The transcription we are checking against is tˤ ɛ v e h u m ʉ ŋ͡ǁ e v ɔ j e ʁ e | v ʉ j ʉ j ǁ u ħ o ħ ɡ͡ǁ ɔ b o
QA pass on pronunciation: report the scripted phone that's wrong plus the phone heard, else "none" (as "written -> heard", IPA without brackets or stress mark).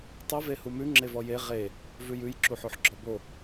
none